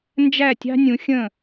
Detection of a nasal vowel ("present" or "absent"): present